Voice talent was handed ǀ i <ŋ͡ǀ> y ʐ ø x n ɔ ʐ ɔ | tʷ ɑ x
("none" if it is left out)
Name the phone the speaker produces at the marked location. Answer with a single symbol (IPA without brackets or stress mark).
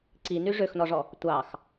n